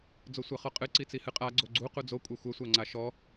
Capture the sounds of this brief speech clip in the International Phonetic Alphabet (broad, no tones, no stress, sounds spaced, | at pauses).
d͡z o sʷ a χ ɔ qʼ ɨ ǀ i t͡s i h ɨ qʼ a ɡ͡ǀ o ɡ͡ǀ u q u d͡z o kʷʼ ɐ xʷ ɐ sʷ a ŋ͡ǀ a ʃ ɔ